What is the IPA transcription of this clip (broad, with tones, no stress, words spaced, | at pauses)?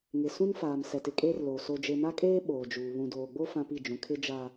ŋɪ˨ sũ˦nfaː˨m sɛ˨tɪ˨kʼeː˦rloː˨ so˨d͡ʒe˨na˦kʼeː˦ ɓoː˨d͡ʒuː˨ βũ˨doː˨ɡ͡bo˦ fã˦pi˦˨d͡ʒũ˨ kʰɪ˦d͡ʒa˦